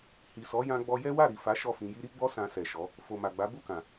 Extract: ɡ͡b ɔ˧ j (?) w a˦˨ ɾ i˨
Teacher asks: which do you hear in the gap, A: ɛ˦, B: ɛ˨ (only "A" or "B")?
A